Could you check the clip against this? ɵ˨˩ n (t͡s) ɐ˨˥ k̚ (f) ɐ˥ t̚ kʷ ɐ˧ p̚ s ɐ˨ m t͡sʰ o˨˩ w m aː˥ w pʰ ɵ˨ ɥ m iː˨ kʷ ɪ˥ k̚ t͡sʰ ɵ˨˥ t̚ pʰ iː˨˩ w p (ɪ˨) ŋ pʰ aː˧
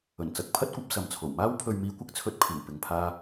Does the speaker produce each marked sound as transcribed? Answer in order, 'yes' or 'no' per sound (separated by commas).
yes, no, yes